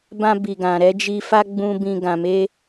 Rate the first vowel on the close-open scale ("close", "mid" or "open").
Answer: open